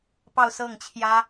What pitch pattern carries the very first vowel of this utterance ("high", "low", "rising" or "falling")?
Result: falling